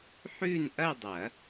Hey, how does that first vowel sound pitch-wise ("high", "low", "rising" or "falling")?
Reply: falling